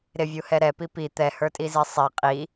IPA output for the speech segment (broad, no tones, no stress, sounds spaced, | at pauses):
ɾ ɪ vʲ u h ɛ ɾ ɛ p i p i t̪ ɛ h ə˞ tʼ i z i sˤ i qʼ i